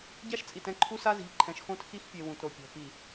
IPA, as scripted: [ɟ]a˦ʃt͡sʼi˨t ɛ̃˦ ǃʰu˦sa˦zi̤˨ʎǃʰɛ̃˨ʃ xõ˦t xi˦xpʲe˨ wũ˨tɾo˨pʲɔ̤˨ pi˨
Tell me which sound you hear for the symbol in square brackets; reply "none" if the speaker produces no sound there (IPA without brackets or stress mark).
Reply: ɟ